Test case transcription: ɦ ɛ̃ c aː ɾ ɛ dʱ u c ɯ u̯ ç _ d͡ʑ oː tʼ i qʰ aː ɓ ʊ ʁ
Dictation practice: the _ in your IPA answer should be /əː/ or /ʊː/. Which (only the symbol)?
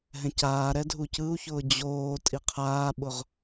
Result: ʊː